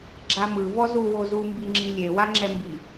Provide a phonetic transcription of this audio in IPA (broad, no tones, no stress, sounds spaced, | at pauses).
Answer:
ɡ͡ǁ a m ɯ v ɔ z u w o z u m b i ŋ͡ǁ i lʲ e w a ŋ͡ǁ ɛ m b i